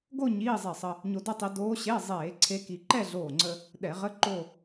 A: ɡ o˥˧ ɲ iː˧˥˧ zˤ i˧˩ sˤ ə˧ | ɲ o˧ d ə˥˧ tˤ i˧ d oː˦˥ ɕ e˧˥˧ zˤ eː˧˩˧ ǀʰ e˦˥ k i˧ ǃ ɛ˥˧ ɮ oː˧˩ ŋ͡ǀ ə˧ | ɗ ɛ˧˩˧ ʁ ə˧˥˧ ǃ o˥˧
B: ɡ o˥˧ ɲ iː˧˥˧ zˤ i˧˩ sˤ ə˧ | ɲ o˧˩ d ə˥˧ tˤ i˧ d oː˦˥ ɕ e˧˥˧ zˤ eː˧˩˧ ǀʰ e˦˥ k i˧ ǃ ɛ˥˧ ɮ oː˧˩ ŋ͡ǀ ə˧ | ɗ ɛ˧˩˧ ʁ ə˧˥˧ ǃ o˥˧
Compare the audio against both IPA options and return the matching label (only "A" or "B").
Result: A